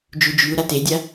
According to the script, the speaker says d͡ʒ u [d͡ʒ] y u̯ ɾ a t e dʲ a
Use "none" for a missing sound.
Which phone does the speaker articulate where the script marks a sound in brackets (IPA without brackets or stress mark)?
d͡ʒ